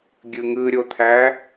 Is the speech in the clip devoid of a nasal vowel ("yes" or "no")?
yes